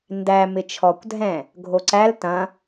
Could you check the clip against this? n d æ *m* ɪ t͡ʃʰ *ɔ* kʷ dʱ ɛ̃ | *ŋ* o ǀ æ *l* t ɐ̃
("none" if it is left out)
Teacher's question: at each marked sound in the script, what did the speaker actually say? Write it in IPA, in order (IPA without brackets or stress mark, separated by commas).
m, ɔ, ɡʱ, l